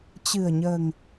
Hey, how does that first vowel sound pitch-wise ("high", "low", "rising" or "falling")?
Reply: low